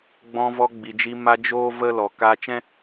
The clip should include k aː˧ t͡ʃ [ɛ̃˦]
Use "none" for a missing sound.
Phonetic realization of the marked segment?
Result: ɛ̃˦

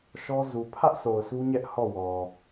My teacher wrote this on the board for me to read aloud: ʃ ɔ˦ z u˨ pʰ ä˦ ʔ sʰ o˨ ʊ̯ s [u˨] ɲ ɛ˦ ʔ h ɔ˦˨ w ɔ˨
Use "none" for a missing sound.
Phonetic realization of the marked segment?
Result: u˦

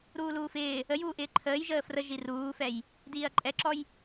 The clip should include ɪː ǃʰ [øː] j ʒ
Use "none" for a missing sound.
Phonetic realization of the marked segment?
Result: əː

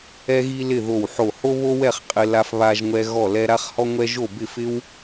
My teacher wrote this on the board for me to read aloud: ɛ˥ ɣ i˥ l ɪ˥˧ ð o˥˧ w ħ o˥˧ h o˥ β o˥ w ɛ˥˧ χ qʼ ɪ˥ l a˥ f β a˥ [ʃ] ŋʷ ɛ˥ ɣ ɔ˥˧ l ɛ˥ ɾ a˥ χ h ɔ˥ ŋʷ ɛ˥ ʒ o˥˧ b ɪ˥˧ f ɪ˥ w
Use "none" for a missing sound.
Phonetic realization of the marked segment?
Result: ʒ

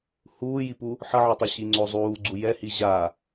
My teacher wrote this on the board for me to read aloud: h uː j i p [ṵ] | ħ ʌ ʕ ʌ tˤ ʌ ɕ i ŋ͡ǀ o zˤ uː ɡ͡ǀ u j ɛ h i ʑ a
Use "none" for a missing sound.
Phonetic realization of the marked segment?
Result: u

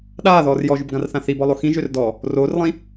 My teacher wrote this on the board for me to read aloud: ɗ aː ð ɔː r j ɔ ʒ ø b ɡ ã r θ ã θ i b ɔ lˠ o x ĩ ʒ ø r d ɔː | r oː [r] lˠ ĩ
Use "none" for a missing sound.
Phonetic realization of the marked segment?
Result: r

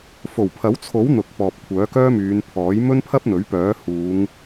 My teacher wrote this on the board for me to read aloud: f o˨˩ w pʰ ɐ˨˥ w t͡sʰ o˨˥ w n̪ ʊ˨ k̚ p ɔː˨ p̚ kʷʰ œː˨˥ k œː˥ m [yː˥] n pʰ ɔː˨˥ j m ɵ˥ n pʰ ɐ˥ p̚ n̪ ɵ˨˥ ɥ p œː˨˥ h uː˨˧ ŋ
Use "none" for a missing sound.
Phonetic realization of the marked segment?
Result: yː˨˧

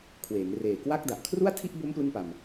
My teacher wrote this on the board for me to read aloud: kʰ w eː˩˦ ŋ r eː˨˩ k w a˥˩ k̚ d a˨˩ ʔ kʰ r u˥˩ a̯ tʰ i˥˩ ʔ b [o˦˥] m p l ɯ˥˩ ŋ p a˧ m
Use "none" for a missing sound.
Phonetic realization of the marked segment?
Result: o˦˥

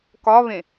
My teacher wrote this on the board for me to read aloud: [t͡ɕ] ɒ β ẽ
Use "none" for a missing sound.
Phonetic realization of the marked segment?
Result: k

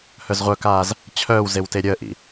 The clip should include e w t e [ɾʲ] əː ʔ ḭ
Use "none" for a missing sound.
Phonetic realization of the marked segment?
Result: ɾʲ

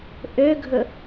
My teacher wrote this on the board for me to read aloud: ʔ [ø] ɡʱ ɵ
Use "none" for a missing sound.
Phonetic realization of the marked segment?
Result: ø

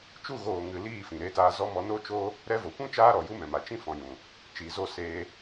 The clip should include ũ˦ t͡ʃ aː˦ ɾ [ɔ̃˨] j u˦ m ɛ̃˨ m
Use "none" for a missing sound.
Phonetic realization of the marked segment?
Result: ɔ˨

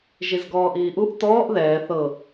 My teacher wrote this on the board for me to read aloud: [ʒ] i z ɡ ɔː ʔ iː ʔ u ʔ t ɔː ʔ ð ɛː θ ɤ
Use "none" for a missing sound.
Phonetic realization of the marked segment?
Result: ʒ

